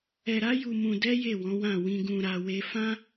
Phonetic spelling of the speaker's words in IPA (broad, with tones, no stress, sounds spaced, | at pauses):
ɛ˧ ɾ a˦ j u˧ m ũ˧ d ɛ˦ j e˦˨ w ɔ̃˨˦ w ã˦˨ w ĩ˧ ɡ ũ˧ ɾ a˧ w e˦ f ã˦